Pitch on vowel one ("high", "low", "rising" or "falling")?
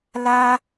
high